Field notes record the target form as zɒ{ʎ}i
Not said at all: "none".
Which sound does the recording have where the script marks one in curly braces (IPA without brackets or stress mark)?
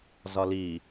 l